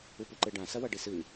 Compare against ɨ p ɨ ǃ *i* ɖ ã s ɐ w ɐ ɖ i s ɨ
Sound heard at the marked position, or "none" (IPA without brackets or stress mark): e